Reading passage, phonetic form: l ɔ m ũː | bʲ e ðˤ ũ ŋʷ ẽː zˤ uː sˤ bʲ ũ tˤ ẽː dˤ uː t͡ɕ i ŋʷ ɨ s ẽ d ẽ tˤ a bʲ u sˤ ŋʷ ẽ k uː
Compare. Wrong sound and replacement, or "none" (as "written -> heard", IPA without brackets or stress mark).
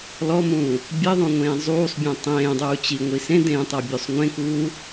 ɨ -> i